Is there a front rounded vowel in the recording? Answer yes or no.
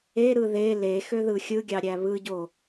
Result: yes